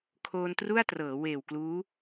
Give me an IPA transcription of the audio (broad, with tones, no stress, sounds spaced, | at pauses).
kʰ oː˧ n t r u˥˩ a̯ t r ɤː˩˦ w eː˨˩ w k l uː˦˥